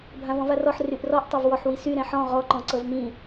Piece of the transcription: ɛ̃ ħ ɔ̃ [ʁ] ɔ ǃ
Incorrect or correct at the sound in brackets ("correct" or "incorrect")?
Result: correct